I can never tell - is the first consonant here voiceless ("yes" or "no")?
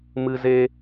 no